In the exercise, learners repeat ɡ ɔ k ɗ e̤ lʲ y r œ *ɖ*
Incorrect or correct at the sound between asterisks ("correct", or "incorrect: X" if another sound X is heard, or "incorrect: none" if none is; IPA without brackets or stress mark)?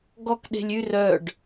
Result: correct